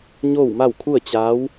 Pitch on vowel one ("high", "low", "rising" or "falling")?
falling